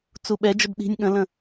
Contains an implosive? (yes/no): yes